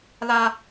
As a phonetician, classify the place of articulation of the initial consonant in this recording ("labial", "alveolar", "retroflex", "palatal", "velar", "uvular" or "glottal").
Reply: alveolar